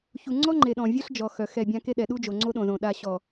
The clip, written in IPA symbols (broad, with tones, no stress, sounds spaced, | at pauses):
ç u˨ ŋ͡ǀ ɔ˦ ŋ͡ǃ e˨ ɗ ɔ̃˨ vʲ œ˦ ɬ d͡ʒ ɔ˨ x œ˨ x ɛ˦˨ bʲ ã˦ k e˦ ɗ ɛ˨ ɗ u˦ d͡ʒ o˨ ŋ͡ǀ o˦ ɗ õ˨ z õ˨ ɗ a˨ ɕ ɔ˨